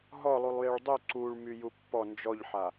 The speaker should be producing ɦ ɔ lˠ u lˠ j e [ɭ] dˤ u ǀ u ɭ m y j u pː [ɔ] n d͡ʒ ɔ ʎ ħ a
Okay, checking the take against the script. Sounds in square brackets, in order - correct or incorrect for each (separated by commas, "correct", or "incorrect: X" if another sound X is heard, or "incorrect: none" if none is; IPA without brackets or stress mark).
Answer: correct, correct